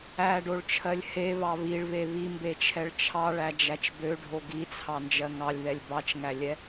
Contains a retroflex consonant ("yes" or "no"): yes